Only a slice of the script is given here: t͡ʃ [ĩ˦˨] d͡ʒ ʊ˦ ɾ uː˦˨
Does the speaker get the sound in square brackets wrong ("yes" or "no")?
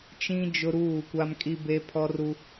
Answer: yes